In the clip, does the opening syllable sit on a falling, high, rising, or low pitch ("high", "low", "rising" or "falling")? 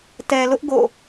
low